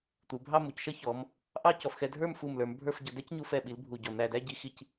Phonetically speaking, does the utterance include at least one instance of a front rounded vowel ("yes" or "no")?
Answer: no